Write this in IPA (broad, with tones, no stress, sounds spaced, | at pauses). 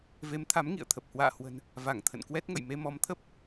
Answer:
v e˨˦ m t̪ʰ a˨˦ m ŋ ḭ˧˨ ə̯ t̪ʰ ə˨˩ p̚ h w a̰ː˧˨ h w ə̤˨˩ n | v a˧˩ ŋ t̪ʰ ə̰˧˨ n k w ɛ˦˥ t̚ ŋ ə̰˧˨ j m e˧ m ɔ˨˦ m t̪ʰ ə˦˥ p̚